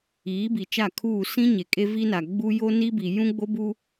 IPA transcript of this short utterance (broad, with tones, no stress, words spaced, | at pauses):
iː˨˦bi˨t͡ʃa˦˨kʰuː˦˨ sĩ˦ ɲe˨kʼe˦vi˦na˨ ɡ͡bu˦ jo˦ni˦bi˨ jũ˦ɡ͡bo˦bu˦